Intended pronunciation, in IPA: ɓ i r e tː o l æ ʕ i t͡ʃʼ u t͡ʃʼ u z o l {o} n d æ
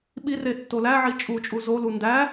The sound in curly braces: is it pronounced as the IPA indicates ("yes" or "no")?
no